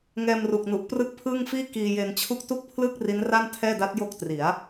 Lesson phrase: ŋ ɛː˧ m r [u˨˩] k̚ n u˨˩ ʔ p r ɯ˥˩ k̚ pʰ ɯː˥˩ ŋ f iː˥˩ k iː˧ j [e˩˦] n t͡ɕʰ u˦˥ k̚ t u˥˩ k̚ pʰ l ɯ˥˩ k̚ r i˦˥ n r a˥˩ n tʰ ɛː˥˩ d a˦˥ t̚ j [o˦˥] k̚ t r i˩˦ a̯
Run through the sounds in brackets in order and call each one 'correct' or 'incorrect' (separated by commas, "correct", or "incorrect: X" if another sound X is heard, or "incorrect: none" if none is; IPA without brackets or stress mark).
correct, incorrect: e˧, incorrect: o˥˩